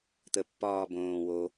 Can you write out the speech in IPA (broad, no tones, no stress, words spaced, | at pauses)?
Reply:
t̪əpːɒː bõː wo